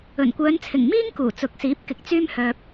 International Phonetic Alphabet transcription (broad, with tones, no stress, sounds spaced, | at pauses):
ɵ˨˩ n kʷ œː˨˧ n t͡sʰ ɪ˨˩ ŋ m iː˥ ŋ k uː˨˩ t͡s ʊ˨˥ k̚ s iː˨˥ p̚ k ɪ˨ k̚ t͡s yː˥ m h œː˧ p̚